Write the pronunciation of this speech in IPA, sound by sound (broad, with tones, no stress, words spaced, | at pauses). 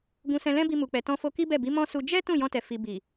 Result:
ɡũ˧sɛ̃˧lɛ̃˦bi˧ mu˨k͡pɛ˨tɔ̃˧fo˧ ki˦bɛ˦˨bi˨˦ mɔ̃˦su˧ d͡ʒɛ˦ tũ˦˨jɔ̃˧tɛ˨ fi˨ bi˨